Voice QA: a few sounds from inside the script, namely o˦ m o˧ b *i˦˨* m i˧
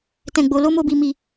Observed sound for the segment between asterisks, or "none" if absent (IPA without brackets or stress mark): i˧